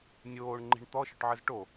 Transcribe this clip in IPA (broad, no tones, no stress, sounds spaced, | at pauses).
nʲ oː ɳ ŋ͡ǃ i̤ ɳ t̪ ɔ ʃ ɵ ʈ ʕ ə z ʈ o